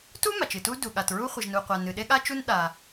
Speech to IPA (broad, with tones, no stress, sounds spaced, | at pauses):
t u˥ m a˩ t͡ʃ ɨ˩ t u˥ d u˩ ɠ a˩ t ɹ u˥ χʷ ɨ˩ ʒ n u˩ qʷ a˩ n ɨ˩ ɗ e˥ ɠ a˥ t͡ʃ u˥ n ɗ a˩